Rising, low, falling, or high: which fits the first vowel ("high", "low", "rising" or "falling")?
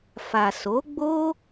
low